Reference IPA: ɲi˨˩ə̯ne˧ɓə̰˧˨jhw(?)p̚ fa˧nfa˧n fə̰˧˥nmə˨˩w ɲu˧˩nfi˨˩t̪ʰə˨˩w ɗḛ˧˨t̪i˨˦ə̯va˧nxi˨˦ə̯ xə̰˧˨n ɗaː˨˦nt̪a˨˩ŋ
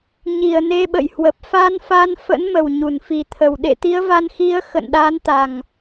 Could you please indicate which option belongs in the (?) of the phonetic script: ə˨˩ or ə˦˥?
ə˨˩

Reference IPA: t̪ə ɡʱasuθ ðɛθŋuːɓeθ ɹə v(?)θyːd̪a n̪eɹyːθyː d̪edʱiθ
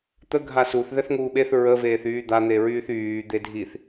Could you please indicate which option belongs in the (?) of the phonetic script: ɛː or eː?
eː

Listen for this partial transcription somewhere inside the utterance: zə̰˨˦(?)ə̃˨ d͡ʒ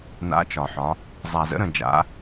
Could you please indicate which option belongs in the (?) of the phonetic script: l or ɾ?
ɾ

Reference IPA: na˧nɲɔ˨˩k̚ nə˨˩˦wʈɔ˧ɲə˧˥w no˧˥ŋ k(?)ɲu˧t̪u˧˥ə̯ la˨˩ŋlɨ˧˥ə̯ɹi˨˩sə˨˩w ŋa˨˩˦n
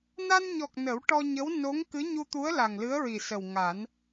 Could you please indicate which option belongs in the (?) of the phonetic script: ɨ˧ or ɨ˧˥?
ɨ˧˥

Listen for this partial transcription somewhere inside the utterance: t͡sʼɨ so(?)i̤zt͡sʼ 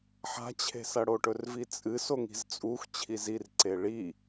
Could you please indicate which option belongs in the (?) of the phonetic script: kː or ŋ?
ŋ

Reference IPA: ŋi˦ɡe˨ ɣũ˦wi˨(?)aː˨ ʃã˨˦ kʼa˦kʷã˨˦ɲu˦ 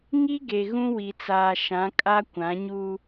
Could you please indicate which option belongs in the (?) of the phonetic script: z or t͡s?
t͡s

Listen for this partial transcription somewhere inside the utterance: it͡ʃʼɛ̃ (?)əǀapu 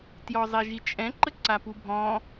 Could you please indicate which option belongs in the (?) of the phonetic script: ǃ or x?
ǃ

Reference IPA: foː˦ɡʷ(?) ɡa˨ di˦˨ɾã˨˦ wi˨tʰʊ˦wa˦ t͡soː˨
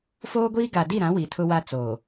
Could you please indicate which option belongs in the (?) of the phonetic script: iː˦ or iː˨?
iː˦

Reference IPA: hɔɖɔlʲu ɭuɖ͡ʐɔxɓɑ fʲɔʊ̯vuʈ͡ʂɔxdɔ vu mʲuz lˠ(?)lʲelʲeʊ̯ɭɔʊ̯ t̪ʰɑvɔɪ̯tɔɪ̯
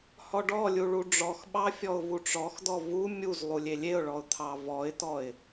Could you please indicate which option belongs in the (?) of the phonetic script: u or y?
u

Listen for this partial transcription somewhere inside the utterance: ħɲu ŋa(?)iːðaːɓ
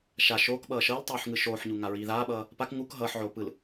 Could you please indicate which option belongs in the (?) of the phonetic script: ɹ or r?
ɹ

